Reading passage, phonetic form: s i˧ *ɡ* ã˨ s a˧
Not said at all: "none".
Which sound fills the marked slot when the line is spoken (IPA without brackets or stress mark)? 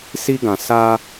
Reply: ɡ